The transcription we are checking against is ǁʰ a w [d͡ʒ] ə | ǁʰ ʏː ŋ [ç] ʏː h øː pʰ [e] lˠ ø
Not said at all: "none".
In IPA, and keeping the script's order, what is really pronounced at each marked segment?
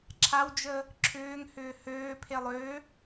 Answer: d͡ʒ, h, e

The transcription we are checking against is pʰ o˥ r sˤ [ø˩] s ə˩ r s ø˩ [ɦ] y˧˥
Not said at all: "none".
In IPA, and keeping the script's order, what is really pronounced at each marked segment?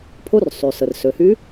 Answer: y˩, h

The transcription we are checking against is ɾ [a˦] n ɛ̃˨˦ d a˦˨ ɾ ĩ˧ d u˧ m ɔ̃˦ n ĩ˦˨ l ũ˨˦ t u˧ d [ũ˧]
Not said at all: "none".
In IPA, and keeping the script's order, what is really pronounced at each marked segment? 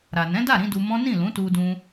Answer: a˨, ũ˧

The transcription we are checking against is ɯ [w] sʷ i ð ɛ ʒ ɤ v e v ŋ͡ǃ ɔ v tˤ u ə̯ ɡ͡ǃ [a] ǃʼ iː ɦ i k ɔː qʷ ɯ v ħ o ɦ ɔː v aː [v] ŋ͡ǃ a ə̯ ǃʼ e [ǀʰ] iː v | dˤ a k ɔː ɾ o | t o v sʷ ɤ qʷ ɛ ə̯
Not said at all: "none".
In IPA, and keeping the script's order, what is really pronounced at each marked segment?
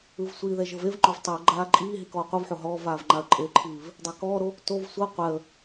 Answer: v, aː, v, ǃʰ

